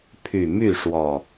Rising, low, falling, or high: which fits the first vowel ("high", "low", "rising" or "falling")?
low